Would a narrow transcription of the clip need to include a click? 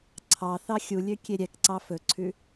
yes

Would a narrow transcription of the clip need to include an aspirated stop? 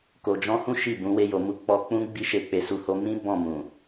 no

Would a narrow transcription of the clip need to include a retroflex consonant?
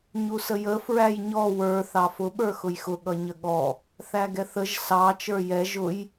no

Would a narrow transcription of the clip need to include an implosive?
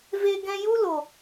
no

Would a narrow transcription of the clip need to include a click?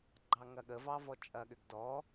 yes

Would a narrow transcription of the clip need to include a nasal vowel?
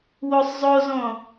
yes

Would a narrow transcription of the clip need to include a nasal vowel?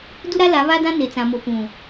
yes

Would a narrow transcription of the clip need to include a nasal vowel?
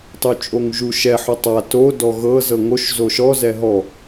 no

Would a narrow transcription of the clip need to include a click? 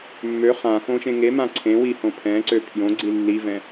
yes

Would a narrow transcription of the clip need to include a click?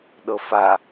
no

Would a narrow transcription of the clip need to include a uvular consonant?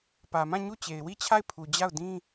no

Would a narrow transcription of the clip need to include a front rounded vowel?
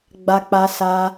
no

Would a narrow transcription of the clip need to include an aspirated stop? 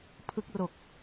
yes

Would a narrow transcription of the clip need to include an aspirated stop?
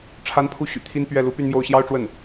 yes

